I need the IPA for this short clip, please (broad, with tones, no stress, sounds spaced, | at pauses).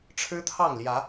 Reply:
ʈ͡ʂʰ ɻ̩˦ t̪ʰ ɑ˥˨ ŋ l j ä˨˦